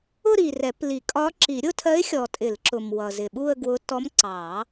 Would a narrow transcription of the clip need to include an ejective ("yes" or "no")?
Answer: yes